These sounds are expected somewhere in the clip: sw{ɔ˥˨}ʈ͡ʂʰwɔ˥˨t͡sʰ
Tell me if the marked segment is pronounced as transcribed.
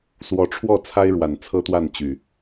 no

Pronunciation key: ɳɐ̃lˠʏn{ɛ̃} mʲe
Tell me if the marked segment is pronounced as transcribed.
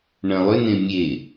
no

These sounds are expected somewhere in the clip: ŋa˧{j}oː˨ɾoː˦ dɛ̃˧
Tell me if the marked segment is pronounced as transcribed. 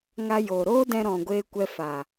yes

